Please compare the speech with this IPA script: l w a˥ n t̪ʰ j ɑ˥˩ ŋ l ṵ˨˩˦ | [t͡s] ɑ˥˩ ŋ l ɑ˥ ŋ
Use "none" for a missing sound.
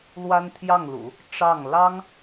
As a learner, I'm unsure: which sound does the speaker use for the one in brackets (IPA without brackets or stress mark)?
ʈ͡ʂ